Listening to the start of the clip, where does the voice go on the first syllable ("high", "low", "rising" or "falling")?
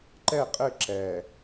falling